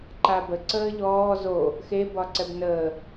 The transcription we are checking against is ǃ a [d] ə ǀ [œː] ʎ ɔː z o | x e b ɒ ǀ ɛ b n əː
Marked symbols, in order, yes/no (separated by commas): no, no